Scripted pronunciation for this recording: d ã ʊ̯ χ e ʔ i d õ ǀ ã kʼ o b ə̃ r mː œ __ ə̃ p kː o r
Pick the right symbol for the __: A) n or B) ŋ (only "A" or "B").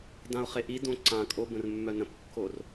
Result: A